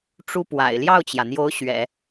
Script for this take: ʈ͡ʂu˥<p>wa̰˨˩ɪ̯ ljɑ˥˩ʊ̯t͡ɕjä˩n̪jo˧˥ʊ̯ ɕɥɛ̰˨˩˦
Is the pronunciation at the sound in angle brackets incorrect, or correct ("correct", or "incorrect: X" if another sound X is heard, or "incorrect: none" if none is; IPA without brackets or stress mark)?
correct